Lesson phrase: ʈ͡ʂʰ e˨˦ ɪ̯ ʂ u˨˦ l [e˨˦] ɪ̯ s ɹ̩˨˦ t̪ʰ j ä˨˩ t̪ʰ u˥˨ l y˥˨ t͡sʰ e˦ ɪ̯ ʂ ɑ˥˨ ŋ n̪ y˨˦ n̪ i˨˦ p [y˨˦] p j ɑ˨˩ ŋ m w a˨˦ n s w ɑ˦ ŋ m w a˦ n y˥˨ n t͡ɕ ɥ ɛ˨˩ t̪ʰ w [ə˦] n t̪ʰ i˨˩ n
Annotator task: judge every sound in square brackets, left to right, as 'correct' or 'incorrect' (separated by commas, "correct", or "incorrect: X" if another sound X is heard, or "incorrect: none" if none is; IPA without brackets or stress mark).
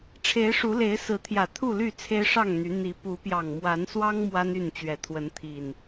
correct, incorrect: u˨˦, incorrect: ə˨˦